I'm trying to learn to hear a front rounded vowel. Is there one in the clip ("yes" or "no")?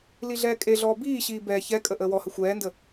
no